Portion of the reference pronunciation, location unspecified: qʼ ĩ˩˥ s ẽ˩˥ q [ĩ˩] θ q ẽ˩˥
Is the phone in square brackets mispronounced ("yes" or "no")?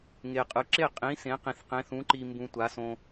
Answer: no